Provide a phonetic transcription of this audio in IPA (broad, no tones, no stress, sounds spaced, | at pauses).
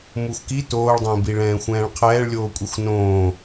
m u xʷ k i t oː ɭ dˤ ə̃ː b i ɭ ɛ̃ː xʷ ɛ̃ː ɭ qʰ ɛː ɭ lʲ oː kʷʼ ɛ xʷ n õː